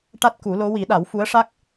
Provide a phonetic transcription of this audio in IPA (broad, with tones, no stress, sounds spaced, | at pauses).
ʈ a˦˥ t̚ k u˨˩˦ l o˧˥ w i˨˩˦ ɗ a˨˩˦ w f u˧˥ ə̯ ʂ a˦˥ k̚